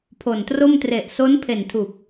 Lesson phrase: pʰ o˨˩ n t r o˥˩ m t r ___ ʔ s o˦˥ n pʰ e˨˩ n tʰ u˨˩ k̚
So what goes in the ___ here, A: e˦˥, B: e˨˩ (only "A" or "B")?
B